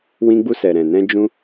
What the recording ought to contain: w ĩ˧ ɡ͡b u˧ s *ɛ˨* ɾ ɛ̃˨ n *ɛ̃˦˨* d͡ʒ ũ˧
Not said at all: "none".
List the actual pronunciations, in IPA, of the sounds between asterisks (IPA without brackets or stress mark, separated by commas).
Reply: ɛ˨, ɛ̃˧